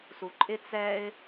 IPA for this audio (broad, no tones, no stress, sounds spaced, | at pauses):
s u ǃʼ ɪ t͡s ɛ ɪ̯